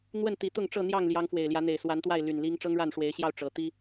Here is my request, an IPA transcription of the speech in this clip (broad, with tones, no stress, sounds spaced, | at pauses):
n̪ w ə˥˨ n t̪ i˨˦ t̪ ʊ˥˨ ŋ ʈ͡ʂ ɤ˥˨ n̪ j ɑ˥˨ ŋ l j ɑ˨˦ ŋ f w e˨˩ ɪ̯ l j ä˨˦ n̪ e˨˩ ɪ̯ s w a˨˦ n t̪ w a˥˨ ɪ̯ l y˨˩ n l i˦ ŋ ʈ͡ʂ ɤ˦ ŋ ɻ a˥˨ n ʂ w e˨˦ ɪ̯ ɕ j ɑ˥˨ ʊ̯ ʈ͡ʂ ɤ˨˦ t̪ i˦